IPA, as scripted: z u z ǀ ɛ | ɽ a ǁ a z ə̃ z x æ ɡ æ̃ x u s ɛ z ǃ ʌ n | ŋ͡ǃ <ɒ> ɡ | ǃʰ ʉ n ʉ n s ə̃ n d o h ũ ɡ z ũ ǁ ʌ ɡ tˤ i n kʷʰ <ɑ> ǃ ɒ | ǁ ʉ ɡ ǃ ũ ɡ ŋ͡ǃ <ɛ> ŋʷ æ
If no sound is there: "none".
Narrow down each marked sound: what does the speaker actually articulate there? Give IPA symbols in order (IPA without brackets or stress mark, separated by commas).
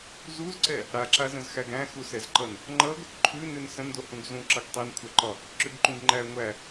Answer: ʌ, a, æ